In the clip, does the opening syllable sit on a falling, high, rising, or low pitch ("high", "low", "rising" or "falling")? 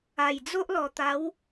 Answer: low